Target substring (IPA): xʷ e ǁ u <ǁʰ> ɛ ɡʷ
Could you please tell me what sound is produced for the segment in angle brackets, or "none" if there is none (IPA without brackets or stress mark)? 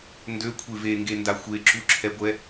ǁʰ